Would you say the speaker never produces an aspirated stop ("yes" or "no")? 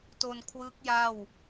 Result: no